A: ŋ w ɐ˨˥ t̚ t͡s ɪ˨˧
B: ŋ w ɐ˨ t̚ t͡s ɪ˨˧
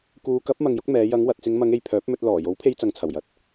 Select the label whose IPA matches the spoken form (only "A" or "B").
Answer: B